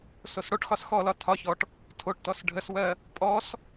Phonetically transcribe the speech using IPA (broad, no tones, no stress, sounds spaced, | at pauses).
s o s ɽ o ʈ x ɒ s x ɔ l ɒ tʰ ɒ ç ɔ ʈ | tʰ o ʈ t ɔ s ɖʱ ə s w ɜ | pʼ ɔ s